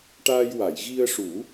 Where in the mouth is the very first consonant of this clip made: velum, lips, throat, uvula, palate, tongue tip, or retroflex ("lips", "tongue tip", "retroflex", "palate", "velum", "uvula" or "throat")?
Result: retroflex